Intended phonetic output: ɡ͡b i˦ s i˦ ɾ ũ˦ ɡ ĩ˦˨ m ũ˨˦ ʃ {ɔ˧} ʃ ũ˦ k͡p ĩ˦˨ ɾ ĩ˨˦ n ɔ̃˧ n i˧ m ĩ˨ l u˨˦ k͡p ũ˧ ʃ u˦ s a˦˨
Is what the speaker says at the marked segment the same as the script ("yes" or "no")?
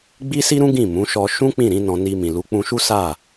yes